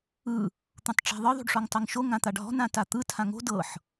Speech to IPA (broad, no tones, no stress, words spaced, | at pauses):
ɯ | t̪ũtˤʈ͡ʂa̤ðˤɯ ðˤṳɖʂɔŋtˤɤŋʃo ŋãt̪aɖɦɔ̤ nãtat̪ɯ tʰãŋo̤ dɤħ